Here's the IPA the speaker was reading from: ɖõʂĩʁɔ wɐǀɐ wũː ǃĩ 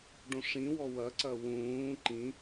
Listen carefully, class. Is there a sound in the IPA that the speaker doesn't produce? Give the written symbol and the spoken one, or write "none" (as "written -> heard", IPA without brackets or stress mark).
ʁ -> w